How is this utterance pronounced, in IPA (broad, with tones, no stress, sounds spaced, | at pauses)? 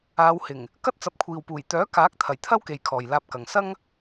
aː˨˧ w h ɪ˨˩ ŋ | k ɐ˥ t̚ t͡s ɐ˨˥ p̚ kʷʰ iː˨ w p uː˨˩ j t̪ œː˨˥ k aː˨˥ k̚ t̪ʰ ɐ˨˩ j t̪ʰ ɐ˥ w k e˨ j kʰ ɔː˨ j l aː˧ p̚ k ɐ˨ ŋ s ɐ˥ ŋ